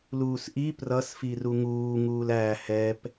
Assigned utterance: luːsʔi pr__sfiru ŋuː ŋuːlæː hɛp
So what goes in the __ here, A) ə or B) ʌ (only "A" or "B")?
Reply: B